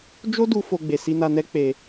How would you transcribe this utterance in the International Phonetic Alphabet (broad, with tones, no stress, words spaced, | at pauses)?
d͡ʒo˦du˧ fo˧ɡ͡be˨si˧na˧ nɛ˦ k͡pe˧